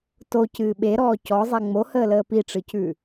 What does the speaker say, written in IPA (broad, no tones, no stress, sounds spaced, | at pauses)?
t o c ɨː ɓ e ɾ ɔː c ɔ zˤ ɛ ŋ͡m o h əː l əː p i ʈ͡ʂ ɨ c ʉ